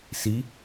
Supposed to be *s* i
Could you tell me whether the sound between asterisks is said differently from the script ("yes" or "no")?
no